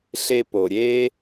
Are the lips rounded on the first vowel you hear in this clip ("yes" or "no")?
no